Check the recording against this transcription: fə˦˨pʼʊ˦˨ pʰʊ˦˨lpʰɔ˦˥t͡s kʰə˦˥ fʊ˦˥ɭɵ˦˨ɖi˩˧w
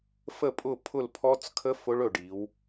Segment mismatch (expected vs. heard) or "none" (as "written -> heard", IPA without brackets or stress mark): none